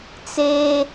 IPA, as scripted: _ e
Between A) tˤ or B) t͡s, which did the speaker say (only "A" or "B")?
B